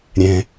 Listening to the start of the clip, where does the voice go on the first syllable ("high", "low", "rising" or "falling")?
low